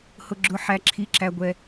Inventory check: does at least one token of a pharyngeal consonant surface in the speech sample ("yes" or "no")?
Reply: yes